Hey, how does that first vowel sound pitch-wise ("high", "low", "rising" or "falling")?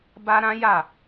high